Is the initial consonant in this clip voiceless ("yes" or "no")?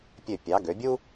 yes